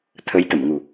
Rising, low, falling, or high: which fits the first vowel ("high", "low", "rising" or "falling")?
rising